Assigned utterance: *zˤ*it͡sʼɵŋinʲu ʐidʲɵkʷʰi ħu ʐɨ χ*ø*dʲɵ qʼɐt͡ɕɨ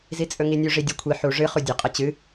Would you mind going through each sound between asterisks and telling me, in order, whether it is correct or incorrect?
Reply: incorrect: z, incorrect: u

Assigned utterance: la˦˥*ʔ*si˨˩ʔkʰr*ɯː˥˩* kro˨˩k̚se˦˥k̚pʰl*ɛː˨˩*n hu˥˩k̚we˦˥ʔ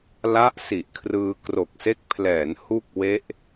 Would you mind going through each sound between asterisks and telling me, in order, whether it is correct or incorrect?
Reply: correct, incorrect: ɯː˧, incorrect: ɛː˩˦

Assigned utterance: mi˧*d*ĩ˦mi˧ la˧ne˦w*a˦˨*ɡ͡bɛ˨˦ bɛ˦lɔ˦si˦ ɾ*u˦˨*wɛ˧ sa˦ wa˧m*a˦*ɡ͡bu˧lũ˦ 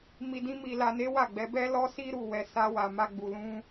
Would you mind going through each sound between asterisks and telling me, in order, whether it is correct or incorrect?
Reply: correct, correct, correct, correct

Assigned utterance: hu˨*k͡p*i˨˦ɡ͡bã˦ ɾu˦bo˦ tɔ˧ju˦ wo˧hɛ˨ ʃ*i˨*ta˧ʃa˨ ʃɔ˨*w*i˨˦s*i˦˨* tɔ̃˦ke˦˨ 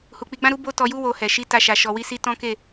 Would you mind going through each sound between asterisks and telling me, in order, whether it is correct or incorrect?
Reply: correct, incorrect: i˨˦, correct, incorrect: i˧

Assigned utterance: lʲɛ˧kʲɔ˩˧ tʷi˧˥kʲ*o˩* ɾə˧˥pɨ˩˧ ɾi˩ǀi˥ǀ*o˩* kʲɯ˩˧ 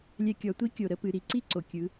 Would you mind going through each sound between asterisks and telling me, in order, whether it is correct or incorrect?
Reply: correct, correct

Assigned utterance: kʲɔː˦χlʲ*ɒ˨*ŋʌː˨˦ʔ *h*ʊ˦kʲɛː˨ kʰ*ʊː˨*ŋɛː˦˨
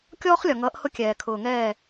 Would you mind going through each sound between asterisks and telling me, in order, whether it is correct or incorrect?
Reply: correct, correct, correct

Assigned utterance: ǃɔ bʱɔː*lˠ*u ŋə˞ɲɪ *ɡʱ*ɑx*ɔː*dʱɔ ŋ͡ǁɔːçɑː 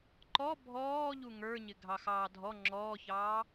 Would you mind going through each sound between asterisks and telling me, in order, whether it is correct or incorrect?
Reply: incorrect: ʎ, correct, incorrect: ɑː

